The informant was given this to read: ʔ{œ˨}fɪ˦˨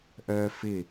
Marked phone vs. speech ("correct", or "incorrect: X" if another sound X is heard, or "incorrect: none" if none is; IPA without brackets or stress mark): incorrect: œ˦